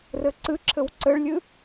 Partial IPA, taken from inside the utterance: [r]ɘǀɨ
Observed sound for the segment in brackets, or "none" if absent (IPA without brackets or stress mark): r